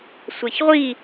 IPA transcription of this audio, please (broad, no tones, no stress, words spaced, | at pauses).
sʷɛçʁʷi